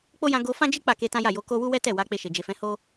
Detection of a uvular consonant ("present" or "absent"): absent